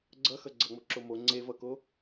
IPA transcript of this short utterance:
ɡ͡ǀ ʌ x ʌ ɡ͡ǀ ʌ ŋ͡m o ǁ o m o ŋ͡ǀ e v ʌ k o

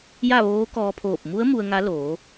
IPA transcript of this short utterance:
j a˥˨ ʋ oː˧˥ k ɔː˧ pʰ oː˧˩ p̚ m u˧˥ ə̯ m u˧ ə̯ ŋ a˧˥ l oː˩˧

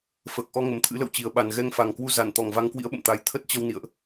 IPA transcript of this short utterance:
f əː˨˩ k̚ ʔ ɔ˧ ŋ ə˨˩ m t̪ʰ ɨ̰˧˥ l ə̰˧˨ w t͡ɕ i˨˩ ə̯ ɓ a˨˩ n ɣ ɛ˧ ŋ f a˨˩ ŋ k w u˧ z a˧˩ n t̪ ɔ˧˩ ŋ v a˧ ŋ k w ḭ˧˥ ə̯ ɓ ə̰˧˨ m t̪ a˧ j t̪ʰ ə˦˥ t̚ t͡ɕ ə˧ w n ḭ˧˨ ə̯ ʔ

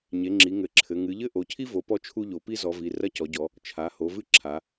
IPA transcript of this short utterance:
ɲ e˩˧ ŋ͡ǁ i˩˧ ŋ ɘ˩˧ ǁʰ ɘ˩˧ ŋ ɨ˩˧ ʎ ɘ˥ ʔ o˩˧ cʰ i˥ v o˩˧ p ɔ˥ t͡ʃʰ u˥ ʎ o˩˧ p i˥ z ɔ˩˧ v i˩˧ r ɐ˥ c ɔ˩˧ ɟ ɔ˩˧ | t͡ʃʰ a˩˧ h o˩˧ v ɨ˥ ǁʰ a˩˧

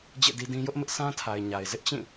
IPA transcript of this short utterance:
d͡ʑ ḛ˦˨ d i˦ d ĩ˦ j ʊ˦ ʔ m ɪ˦ ʔ s ã˦ tʰ a˨ ɪ̯ ɲ a˨ ɪ̯ z ɪ˦ ʔ t͡ɕ ĩ˦˨

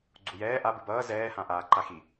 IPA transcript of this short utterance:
ɡ͡ǀ u j ɛː ʔ a b ɯ b ʌː z ɛː h ã ʔ aː ǃ a x i

